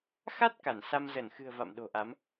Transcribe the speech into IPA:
x a˦˥ t̚ k a˧˩ n s a˧ m z ə˧˩ n x ɨ̤˨˩ ə̯ v a̰˧˨ m ɗ o̤˨˩ ʔ a˨˦ m

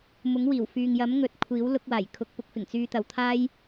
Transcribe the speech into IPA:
m ʊ˨˥ ŋ w iː˨˩ w f yː˨ ŋ j ɐ˨˥ m ŋ ɵ˧ t̚ kʷʰ iː˨˥ w l ʊ˧ k̚ w aː˨˩ j kʰ ʊ˨˥ k̚ p ʊ˨˥ k̚ f ɪ˨˩ ŋ t͡s yː˧ t̪ ɐ˨ w t̪ʰ aː˥ j

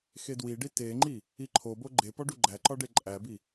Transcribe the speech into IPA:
x e d w i ɖ i t e ŋ͡ǃ i | i ǃʰ o b o ɡ͡ǃ e p ɒ ɖ u ɡ͡ǃ æ ǃ ɒ ɖ e ǃʼ æ b i

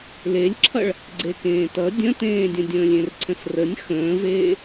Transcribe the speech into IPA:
l e lʲ ǁʰ ʌ ɭ | ɡ͡ǀ e k ẽː t ʌ dʲ ə̃ t ẽː dʲ ə̃ dʲ ə̃ː lʲ ẽ r ǀʰ ə̃ s r ə nʲ x ə̃ː v eː

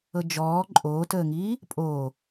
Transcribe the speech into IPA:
ɤ d͡ʒ ɔː ǃʼ oː t əː ŋ iː | pʼ oː

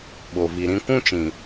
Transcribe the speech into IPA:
ɓ o˨ v i˨ ɾ ĩ˦ kʷ ũ˦ t͡ʃ ĩ˨

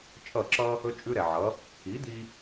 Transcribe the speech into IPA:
t͡ʃʼ ʌ˥˩ ǁ ʌ˥ | ɵ˥ t͡ʃʼ ʉ˥ ɾ ɛ˩ ʕ ʌ˩˥ | i˩˥ d̪ i˧

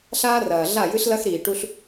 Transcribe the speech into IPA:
ɬ aː˦ r ɐː˨ ɮ a˦˨ j ɨ˦ ɬ l ɐ˦ x ɾ iː˨ ʈ u˦ ɬ

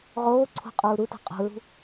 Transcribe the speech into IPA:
ʁ oː ǀʰ ṳ qʼ uː ɾ u t o̤ qʼ o̤ ɹ ṳ

